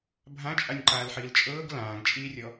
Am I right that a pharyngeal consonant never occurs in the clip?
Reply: no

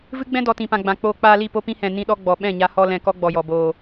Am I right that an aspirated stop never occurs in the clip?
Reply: yes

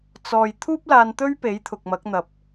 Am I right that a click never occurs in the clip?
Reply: yes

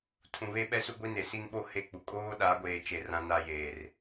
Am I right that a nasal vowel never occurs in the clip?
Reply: no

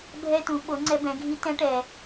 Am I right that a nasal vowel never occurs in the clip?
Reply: no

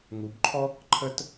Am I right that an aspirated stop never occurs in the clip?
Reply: no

